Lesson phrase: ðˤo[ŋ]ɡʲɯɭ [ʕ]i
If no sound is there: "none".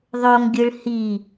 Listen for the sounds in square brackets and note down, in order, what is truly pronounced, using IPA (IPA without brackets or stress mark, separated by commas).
ŋ, h